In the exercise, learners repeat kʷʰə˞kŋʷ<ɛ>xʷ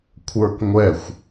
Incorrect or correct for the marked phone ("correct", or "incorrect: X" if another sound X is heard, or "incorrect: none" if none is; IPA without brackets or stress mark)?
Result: correct